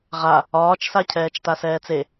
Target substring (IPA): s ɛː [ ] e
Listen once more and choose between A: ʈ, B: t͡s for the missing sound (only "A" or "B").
B